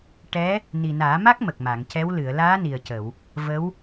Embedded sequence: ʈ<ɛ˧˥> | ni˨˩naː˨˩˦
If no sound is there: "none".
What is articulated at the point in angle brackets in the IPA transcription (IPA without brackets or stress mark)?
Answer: ɛ˧˥